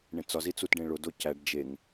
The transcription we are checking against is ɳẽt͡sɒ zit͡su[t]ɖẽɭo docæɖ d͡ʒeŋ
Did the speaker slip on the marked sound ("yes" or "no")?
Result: no